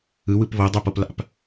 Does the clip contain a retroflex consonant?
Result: no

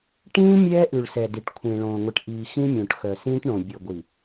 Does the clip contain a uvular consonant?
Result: no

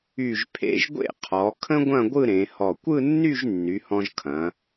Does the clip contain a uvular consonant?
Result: yes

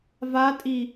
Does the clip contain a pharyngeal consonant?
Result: no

